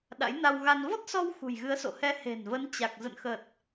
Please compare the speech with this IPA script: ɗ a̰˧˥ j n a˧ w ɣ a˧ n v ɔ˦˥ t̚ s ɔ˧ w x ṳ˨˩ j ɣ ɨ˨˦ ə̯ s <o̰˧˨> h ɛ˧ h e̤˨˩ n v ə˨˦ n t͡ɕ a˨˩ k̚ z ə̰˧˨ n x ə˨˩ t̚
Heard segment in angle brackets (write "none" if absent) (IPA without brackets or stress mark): o̰˧˨